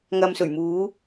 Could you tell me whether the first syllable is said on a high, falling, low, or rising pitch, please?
low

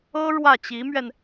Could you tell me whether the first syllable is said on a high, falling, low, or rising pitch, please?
high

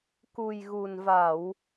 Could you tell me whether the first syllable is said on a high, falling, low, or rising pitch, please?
low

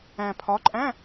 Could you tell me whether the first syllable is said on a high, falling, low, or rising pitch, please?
low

